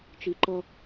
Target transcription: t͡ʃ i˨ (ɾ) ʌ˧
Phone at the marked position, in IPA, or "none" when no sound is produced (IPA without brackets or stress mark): ǃ